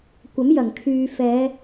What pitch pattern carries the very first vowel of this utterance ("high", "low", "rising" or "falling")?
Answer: rising